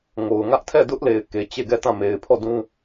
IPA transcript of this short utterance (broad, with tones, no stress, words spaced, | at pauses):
ŋo˨ʊ̯ŋä˦ʔ tʰɛ˦˨dʊ˦ʔle˨ɪ̯ ke˨ t͡ɕe˦˨ɡɛ˦˨tã˦˨ me˨ɪ̯pʰɔ˦˨dũ˦